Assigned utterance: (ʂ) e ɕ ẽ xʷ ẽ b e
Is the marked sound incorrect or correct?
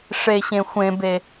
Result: correct